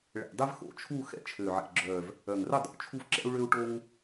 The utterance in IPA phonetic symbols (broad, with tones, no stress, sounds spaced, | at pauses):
ɭ ɛ̰˨˩ dˤ ɛ˦ v x o̰˨˩˦ t͡ʃʰ u˦˨ x ɛ̰˦˨ t͡ʃʰ ø˨˩ ʕ ɛ̰˨˩ ɡ͡ǁ œ˨˩ v | œ˨˩ ŋ r ə˦˨ dˤ o̰˨˩ t͡ʃʰ u˦ v ǁ ɛ̰˦ u̯ ɭ ø˦ u̯ ʈ o˦ ŋ